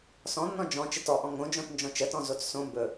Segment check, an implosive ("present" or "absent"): absent